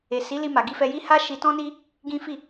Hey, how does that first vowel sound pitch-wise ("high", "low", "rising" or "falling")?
low